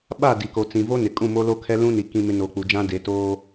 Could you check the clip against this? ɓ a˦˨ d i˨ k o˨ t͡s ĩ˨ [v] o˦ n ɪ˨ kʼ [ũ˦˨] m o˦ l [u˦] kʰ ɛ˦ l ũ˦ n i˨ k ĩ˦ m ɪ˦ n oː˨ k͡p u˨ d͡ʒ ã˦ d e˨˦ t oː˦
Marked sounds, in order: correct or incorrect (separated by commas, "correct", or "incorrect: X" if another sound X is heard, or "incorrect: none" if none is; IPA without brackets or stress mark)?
correct, correct, incorrect: o˦